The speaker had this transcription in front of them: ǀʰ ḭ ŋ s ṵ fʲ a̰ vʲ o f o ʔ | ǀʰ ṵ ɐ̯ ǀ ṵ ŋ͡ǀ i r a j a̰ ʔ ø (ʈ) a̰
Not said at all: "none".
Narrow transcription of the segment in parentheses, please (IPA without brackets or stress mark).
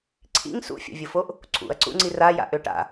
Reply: ʈ